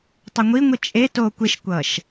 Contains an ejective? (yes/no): yes